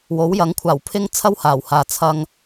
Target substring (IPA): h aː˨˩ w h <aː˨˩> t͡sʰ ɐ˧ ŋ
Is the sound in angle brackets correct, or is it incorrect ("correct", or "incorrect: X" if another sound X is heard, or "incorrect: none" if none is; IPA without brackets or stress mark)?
incorrect: aː˨